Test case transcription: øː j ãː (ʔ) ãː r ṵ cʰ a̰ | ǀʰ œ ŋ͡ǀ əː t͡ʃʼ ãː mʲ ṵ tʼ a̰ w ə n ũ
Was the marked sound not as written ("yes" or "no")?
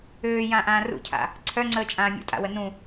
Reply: no